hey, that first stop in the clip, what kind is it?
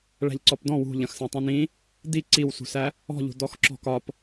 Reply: click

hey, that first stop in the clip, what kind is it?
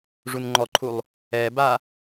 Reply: click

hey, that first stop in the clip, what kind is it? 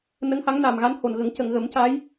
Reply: plain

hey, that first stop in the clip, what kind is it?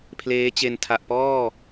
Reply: aspirated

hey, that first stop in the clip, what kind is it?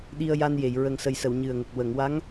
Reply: implosive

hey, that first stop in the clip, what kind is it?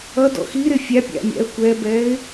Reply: plain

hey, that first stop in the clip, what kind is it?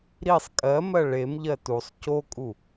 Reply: ejective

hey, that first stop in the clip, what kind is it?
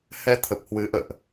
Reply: aspirated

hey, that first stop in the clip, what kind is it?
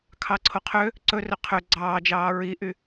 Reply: aspirated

